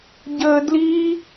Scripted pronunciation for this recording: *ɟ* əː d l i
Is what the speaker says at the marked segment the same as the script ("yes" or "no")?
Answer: yes